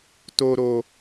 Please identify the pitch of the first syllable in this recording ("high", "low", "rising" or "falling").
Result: low